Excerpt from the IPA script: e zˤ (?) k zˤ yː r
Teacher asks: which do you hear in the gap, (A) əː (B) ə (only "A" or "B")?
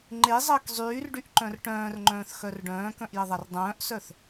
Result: A